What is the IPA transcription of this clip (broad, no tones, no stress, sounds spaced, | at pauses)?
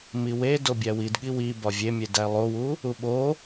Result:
m i w e d o bʲ æ w i d ɠ i w i b ɒ vʲ e mʲ e d æ lˠ o w u | u ɓ o